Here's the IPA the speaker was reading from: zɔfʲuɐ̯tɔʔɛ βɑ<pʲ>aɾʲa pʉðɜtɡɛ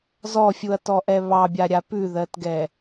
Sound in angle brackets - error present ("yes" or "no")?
yes